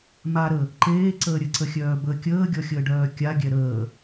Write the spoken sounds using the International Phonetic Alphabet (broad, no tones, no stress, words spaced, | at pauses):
maɾə | ǃeːǀəː ɾʲəǀəxʲœːbəː kʲəːɡʲɔxʲəːɖœː kʲaɡʲɛ ɾəː